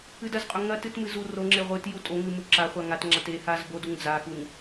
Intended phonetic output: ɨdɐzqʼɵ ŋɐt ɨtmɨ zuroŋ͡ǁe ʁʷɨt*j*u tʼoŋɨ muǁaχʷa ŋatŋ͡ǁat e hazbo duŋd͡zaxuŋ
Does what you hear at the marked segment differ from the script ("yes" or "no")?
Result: no